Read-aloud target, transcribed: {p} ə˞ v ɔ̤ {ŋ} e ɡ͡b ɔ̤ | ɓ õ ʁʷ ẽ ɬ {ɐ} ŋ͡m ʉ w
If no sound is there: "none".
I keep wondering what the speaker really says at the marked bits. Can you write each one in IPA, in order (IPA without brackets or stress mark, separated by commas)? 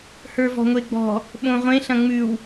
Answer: h, ŋʷ, ɐ̃